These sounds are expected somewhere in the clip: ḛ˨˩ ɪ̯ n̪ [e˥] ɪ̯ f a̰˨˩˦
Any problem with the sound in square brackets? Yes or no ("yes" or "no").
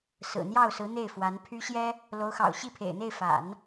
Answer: yes